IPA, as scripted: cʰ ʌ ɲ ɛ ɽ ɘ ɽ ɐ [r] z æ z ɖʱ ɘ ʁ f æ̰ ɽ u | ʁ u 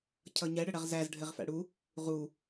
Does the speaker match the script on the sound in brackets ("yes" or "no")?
no